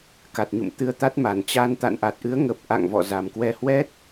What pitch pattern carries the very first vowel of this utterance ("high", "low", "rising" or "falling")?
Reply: low